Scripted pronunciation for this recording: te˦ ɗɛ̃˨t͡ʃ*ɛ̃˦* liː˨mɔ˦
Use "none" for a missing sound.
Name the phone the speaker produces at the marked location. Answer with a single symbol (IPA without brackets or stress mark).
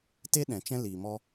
ɛ̃˦